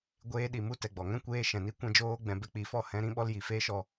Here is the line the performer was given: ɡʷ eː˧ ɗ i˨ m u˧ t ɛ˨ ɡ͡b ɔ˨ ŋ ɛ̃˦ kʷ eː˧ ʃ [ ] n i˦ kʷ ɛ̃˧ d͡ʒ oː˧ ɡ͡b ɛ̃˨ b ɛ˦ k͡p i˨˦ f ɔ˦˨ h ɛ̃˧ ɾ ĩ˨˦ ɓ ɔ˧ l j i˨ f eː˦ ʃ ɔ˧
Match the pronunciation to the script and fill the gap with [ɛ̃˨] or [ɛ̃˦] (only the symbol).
ɛ̃˨